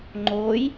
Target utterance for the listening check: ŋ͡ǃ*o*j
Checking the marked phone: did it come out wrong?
yes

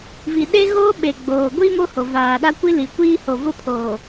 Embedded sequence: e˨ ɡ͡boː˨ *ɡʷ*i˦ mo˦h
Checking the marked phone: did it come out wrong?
no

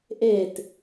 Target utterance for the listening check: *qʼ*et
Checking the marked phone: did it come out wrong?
yes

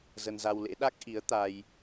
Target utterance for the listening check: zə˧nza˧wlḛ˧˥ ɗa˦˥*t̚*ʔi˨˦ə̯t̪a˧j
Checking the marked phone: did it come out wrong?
yes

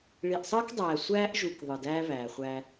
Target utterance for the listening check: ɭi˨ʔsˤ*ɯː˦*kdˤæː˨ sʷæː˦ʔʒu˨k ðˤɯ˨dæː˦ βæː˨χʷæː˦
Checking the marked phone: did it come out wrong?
no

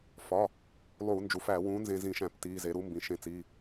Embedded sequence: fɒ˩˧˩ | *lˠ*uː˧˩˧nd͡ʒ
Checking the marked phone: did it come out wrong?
no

